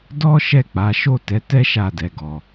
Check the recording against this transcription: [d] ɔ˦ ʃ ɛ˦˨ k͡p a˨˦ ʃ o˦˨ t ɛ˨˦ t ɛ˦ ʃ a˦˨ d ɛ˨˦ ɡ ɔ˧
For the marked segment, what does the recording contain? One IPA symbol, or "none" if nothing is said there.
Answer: d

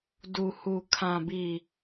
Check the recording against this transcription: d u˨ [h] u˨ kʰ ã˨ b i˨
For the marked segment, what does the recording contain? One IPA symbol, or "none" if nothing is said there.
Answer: h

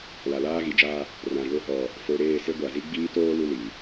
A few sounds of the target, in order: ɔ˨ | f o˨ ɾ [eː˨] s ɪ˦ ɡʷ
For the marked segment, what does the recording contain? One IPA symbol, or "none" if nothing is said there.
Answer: eː˦˨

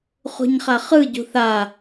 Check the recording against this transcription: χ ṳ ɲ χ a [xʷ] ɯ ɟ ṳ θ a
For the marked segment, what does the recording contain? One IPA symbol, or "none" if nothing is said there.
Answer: χ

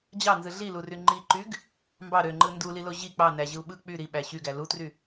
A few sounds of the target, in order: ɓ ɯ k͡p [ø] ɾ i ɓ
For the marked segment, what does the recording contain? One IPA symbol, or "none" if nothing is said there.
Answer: y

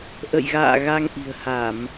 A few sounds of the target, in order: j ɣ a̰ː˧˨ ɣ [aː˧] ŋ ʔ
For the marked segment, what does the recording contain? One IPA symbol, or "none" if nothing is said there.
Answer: a˧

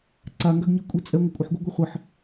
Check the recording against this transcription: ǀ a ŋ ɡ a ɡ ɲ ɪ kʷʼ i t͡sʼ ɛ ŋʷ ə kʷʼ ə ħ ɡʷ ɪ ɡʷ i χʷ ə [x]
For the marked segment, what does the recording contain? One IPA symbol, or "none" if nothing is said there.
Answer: ħ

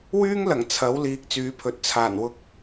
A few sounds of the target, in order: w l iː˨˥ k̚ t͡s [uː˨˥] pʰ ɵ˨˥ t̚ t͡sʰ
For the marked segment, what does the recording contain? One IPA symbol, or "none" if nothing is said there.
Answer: yː˨˥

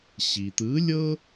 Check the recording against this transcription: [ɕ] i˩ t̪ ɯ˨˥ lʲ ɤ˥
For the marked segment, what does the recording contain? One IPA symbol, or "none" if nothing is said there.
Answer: ɕ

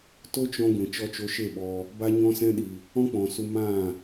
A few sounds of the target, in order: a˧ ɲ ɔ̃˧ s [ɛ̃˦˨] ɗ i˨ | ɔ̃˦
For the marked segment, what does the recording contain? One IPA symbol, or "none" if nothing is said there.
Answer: ɛ̃˧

